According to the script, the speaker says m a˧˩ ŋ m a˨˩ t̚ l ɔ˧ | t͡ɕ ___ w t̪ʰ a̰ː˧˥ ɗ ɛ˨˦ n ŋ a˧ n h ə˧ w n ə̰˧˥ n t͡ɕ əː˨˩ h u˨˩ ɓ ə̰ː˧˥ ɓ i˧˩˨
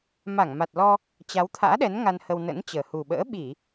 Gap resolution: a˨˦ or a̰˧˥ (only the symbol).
a˨˦